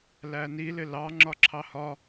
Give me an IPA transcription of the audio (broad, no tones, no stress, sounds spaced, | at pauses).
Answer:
l æ n i l ɪ l ɑ ŋ͡ǁ ɒ ǁʰ ɑ h ɒ